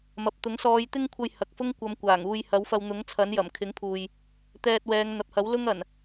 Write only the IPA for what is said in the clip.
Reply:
m ɐ˨ p̚ t̪ ʊ˨˥ ŋ s ɔː˨˧ j t̪ ɪ˥ ŋ kʷʰ ɐ˧ j h ɐ˨ k̚ f ʊ˥ ŋ kʷ ɐ˨˧ m kʷ aː˨˩ ŋ uː˧ j h ɐ˨˥ w f ɐ˧ w n̪ ʊ˨˥ ŋ t͡sʰ ɐ˨˥ n j ɐ˨˩ m kʰ ɪ˨˥ ŋ pʰ uː˨ j | t̪ ɛː˧ t̚ w ɛː˨˧ ŋ n̪ ɐ˨ p̚ h ɐ˨˥ w l ʊ˥ ŋ ɐ˨˩ n

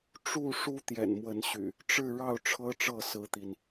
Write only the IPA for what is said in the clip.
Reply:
ʈ͡ʂ u˥˨ ʂ u˦ t̪ j ɛ̰˨˩ n m w ə˨˦ n ɕ y̰˨˩ | ʈ͡ʂ ɻ̩˥˨ ɻ ɑ˥˨ ʊ̯ ʈ͡ʂʰ ɤ˦ ʈ͡ʂ ɤ˥˨ s ɹ̩˦ t̪ i˨ n

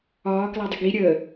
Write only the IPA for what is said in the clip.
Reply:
ɒː k l ɑ dˤ ə ɡ i ɾʲ əː

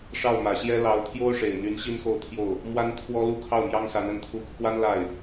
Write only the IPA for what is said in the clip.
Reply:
ʂ ɑ˥˩ ʊ̯ m ä˨˩ ɕ j ɛ˥ l ɑ˧˥ ʊ̯ t̪ʰ j o˥ ʊ̯ ʂ e˨˩ ɪ̯ n̪ y˧˥ n ɕ i˥ n x o˥˧ ʊ̯ t̪ʰ j o˥˩ ʊ̯ | m w a˥ n t̪ʰ w ɔ˥ l u˥˧ kʰ ɑ˥˩ ʊ̯ m j ɑ˥ ŋ s a˧˥ n ə˥˩ n t̪ʰ u˧˥ kʰ w a˥ n l a˥˩ ɪ̯

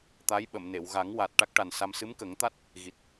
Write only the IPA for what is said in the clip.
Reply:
t̪ a˧˥ j ɓ ə˨˩˨ m n e˨˩˨ w ɣ a˨˩˦ ŋ w a˨˩ t̚ ʈ a˦˥ k̚ ʈ a˨˩ n s a˧ m s ɨ˧˥ m k ə˨˩˦ ŋ t̪ a˦˥ t̚ | ɣ i˨˩ t̚

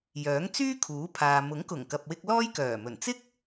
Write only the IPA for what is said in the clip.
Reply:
j œː˨˥ ŋ t͡s yː˥ kʰ uː˨˥ pʰ aː˨ m ʊ˨˥ ŋ k ʊ˨˩ ŋ k ɐ˨ p̚ w ɪ˧ k̚ l ɔː˥ j k œː˨˩ m ɵ˨˩ n t͡s ɪ˥ k̚

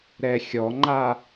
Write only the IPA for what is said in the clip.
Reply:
ɾ ɛ xʲ ɔ ŋ͡ǃ a

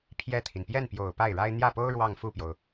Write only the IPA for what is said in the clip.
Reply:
pʰ j ɛ˥˩ t̪ʰ i˩ n p j ɛ˥˩ n p j o˨˩ ʊ̯ p a˥˩ ɪ̯ ɻ a˥ ɪ̯ n̪ j ä˥˩ p o˥ ʊ̯ ɻ w ɑ˥˧ ŋ f u˥˩ p j o˩ ʊ̯

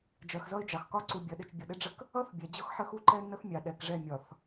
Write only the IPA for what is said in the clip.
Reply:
d͡ʒ ɜ˨ x z ʌ˦ ɪ̯ d͡ʒ ɑ˨ x k ɒ˦ ǀ u˨ bʲ ɜ˨ ɗ ɪ˦˨ t͡ʃ bʲ ə˨ ɗ ɪ˦ ɖ͡ʐ ə˦ k | ʌ˦ θ bʲ ɛ˨ d͡ʑ ʊ˦ x ħ ə˦ x u˦ ǃ ɛ˦ n ə˦ θ mʲ ɑ˨ ɗ ɛ˨ k ʐ ɛ˦˨ mʲ ɒ˨ θ

